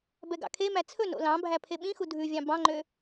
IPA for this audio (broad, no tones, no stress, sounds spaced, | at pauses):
b ɛ ɡ ɑ̰ kʰ e m æ t͡sʰ ɵ n o̰ l ɑ̃ bʱ æ pʰ e ɓ ĩ x u dʱ ʉ vʲ ɑ̃ b ɑ̃ ŋ͡ǃ ø